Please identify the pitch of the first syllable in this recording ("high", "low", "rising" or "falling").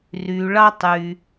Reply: low